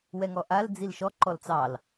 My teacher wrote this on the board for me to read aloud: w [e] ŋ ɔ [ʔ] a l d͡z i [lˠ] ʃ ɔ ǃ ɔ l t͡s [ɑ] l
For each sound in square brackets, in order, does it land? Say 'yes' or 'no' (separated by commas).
no, yes, no, yes